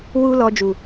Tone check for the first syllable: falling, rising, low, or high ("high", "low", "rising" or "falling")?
high